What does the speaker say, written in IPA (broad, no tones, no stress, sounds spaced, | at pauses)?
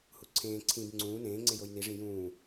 h u ǀʰ ẽː ǀʰ ĩ b ŋ͡ǀ ũː n ẽː ŋ͡ǀ e j o j n i ʐ ĩ j ũː